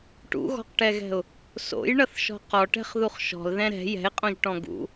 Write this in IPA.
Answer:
ʈ ṵ ɣ ɔ̤ q ʈ ɛ ɣ ɛ̤ ʊ̯ | s o̰ j ɳ ʌ θ ʃ ɔ̤ q ɔ ʈ ɛ̤ χ ð u χ ʃ ɔ̤ l ð ɛ̃ ɾ ɛ̤ j ɛ̤ ɪ̯ qʼ õ ʒ ʈ ɔ̃ ɡ ṵ

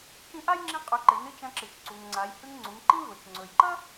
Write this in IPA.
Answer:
t͡ʃ ĩ˧˥ ʔ a˥ j ŋ͡ǁ ĩ˧˥ qʼ ʉ˩˧ ǃ e˩˧ n ɨ˧ t͡ʃ ɐ̃˧ ǁ ɨ˩ t͡ʃ ǀ u˩ ŋ ŋ͡ǀ a˩˧ j h ʉ˧ ŋ ŋ͡ǀ u˩˧ ŋ ǃ ĩ˥ v ɵ˩ t͡ʃ ŋ͡ǀ ɵ˩ j ǃ ɐ˥

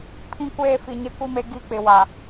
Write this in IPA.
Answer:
pʰ ĩ˦ kʷ eː˦ f i˨ ɲ e˦ kʷ i˦ m e˨˦ ɡ i˦˨ k͡p ɪ˨ w a˨

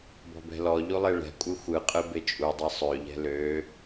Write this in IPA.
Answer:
b ɔ̤ b ɛ̤ l ɔ ʎ u lˠ e ɭ ɛ̤ kʷʼ ɯ xʷ ɯ qʼ ɯ b e t͡ʃʼ u dˤ ɛ sˤ ø ʎ ɛ̤ l ø

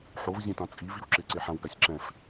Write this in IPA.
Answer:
ħ o v zʲ ɛ̃ t ã t͡sʼ i v i w ǁ ɪ ǀ e ħ ã w ɡ a sʲ ǁ ɛ̃ f

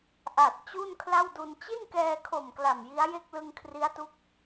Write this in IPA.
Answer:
ʔ a˨˩ t̚ t͡ɕ u˥˩ n kʰ l a˥˩ w d u˧ n t͡ɕ i˥˩ n k ɛː˧ kʰ o˨˩ m k l a˨˩ m j i˦˥ a̯ j e˥˩ k̚ l ɯ˧ ŋ kʰ r i˦˥ a̯ t u˦˥ k̚

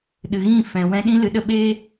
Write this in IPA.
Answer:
ɗ ɨ˨ ɣ ĩ˦˨ f ɛ̃˨ w ɛ̃˧ ɗ ĩ˦ l ɨ˨ ɗ ə˦˨ ɓ eː˦

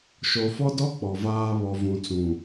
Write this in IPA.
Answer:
ʃ o˨ f ɔ˦ d ɔ˦ k͡p ɔ˨ v aː˦ β ɔ˨ v ũ˨ t͡s ũ˨

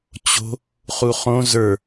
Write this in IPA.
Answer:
t͡ɕ o̤ | χ u χ õ z ə˞

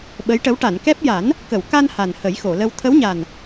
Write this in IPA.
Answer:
ɓ ə˧˥ j ʈ ə˧˥ w ʈ a˨˩˨ n k ɛ˦˥ p̚ j a˨˩˦ n | k ə˨˩˨ w k a˧ n h a˨˩ n h ə˨˩˦ j x o˨˩˨ l ə˧ w t̪ʰ ə˧˥ w ɲ a˨˩ n

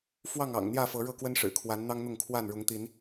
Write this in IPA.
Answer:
f w ɑ˥˨ ŋ ɑ̰˨˩ ŋ n̪ j ä˥˨ f ɤ˨˦ ɻ ɤ˥˨ k w ə˦ n ʂ ɻ̩˨˩ kʰ w a˨˦ n n̪ ɑ˦ ŋ n̪ ʊ˥˨ ŋ kʰ w a˥˨ n ɻ ʊ˨˦ ŋ t̪ i˨˦ n

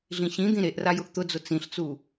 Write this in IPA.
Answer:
ɮ ĩ ɕ ĩ d̪ ĩ ɾ e ʔ r a j ʊ ʔ t̪ ʊ d͡z ʊ t͡s ĩ ɬ t͡s u

